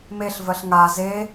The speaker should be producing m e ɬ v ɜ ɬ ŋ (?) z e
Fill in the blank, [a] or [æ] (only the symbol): a